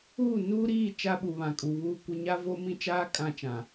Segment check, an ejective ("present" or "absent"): present